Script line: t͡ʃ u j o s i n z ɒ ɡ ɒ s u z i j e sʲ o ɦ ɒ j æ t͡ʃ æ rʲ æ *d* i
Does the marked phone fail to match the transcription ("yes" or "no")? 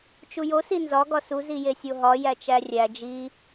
yes